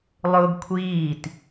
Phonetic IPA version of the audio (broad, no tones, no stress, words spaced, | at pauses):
lˠʊːɡkʷʰiːt